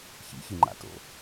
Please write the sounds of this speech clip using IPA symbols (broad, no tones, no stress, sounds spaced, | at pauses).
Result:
ç ḭ ç ɨ ŋ͡ǃ a̰ t o̰